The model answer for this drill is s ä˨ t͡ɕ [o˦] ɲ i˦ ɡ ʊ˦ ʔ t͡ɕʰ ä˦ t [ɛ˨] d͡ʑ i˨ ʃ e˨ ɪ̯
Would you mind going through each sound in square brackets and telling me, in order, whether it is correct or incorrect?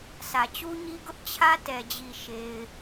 incorrect, correct

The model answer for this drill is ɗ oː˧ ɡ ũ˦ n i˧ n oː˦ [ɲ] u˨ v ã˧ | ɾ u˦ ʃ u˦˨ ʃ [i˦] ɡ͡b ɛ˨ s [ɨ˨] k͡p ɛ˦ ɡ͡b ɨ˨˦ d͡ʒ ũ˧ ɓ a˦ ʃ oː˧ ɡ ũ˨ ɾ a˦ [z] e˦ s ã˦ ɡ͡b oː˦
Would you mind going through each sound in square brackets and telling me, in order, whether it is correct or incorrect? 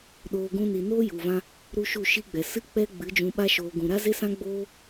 incorrect, correct, incorrect, correct

